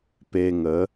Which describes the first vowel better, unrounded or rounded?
unrounded